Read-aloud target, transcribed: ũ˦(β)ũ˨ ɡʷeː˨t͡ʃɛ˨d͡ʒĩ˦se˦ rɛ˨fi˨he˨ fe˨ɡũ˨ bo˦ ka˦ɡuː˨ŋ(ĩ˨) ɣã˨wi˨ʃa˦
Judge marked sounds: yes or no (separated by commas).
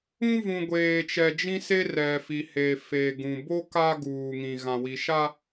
no, yes